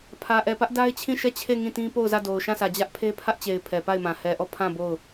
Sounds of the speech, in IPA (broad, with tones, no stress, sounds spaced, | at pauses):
pʰ ä˨ ʔ ɛ˨ p ä˦ ʔ d a˦ ɪ̯ t͡ɕʰ ĩ˦˨ ʃ ɛ˦˨ t͡ɕʰ e˦˨ ŋ ĩ˦˨ t ĩ˦ p o˦˨ ʊ̯ z ä˦˨ d o˨ ʊ̯ ʃ ã˦˨ sʰ ä˨ d͡ʑ ä˦ ʔ pʰ e˦ pʰ ä˦ ʔ t͡ɕ e˨ ɪ̯ pʰ ɛ˨ p a˦˨ ɪ̯ m ã˨ h ɛ˨ ʔ ɔ˦˨ pʰ ã˦˨ b o˦˨ ʊ̯